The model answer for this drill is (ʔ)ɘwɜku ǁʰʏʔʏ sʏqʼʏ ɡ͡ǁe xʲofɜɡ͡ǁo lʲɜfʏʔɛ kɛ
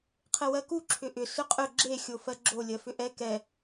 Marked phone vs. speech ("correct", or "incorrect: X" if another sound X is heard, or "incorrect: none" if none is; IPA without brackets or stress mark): incorrect: qʰ